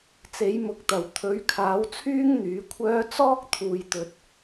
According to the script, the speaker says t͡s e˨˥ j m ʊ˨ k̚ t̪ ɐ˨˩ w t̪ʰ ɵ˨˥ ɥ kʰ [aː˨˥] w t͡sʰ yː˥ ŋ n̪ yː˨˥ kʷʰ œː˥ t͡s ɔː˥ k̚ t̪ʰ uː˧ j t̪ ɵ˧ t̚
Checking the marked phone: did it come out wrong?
no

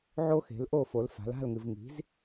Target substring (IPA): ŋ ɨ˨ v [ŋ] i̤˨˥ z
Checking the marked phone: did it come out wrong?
no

